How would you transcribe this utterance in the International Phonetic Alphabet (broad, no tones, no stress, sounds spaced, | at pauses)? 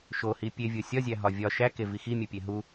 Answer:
ʃ o h i pʲ e vʲ o sʲ ɒ zʲ æ ɦ ɒ vʲ ɒ ʃ æ k e v i x i mʲ u pʲ e ɦ u